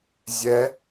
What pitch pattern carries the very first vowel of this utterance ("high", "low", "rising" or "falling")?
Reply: rising